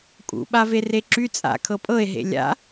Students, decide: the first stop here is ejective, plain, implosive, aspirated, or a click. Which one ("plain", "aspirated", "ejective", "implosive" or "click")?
ejective